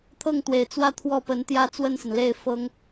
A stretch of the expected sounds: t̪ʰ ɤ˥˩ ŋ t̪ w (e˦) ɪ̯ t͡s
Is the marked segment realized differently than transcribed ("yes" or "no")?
yes